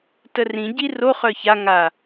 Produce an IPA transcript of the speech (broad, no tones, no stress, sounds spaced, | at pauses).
t ə r ĩ ɟ i r o χ œ ç a ŋ a